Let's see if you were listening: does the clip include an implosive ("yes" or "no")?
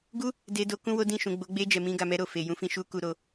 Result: no